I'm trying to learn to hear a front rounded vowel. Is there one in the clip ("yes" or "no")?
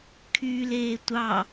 yes